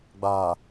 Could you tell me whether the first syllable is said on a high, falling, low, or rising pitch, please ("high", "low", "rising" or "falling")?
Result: low